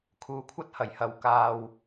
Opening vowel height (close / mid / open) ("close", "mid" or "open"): close